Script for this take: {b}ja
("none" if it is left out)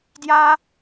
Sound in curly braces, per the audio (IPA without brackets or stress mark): d